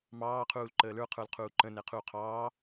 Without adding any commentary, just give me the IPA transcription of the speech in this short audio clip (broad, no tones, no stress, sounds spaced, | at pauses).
m ɑː qʰ uː l ǃ əː l ə˞ qʰ ə˞ l qʰ uː ǃ ə̃ n ɛ qʰ uː qʰ ɑː